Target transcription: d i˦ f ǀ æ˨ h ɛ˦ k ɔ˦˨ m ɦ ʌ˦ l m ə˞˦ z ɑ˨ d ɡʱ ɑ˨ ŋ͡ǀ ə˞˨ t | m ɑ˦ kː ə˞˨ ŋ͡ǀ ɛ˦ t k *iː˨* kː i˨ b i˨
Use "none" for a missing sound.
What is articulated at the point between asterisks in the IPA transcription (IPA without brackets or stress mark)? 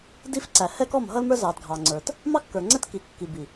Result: i˨